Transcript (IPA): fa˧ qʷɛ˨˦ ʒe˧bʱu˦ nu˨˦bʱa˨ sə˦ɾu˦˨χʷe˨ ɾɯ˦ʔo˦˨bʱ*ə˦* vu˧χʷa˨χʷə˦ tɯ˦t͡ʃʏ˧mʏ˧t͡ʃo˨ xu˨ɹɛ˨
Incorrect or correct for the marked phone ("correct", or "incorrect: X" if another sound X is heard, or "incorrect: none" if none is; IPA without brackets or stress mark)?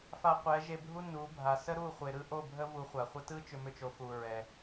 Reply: correct